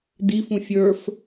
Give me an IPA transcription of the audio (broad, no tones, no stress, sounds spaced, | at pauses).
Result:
d i f ũ fʲ ə˞ f